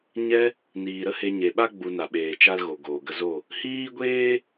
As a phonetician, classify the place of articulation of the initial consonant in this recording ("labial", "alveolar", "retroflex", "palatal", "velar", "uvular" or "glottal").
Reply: palatal